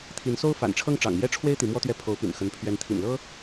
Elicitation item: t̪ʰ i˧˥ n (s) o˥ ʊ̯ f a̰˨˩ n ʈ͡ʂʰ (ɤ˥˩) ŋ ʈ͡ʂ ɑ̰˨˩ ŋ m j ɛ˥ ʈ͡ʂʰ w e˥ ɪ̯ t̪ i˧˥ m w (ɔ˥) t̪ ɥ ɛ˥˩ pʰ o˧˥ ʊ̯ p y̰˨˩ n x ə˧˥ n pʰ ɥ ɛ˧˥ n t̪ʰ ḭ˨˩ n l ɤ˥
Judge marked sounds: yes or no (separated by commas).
yes, yes, yes